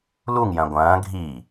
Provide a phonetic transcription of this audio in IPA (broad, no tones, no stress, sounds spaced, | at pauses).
l u ŋ j ɐ̃ ɡʷ ɐ̃ː ɡʱ i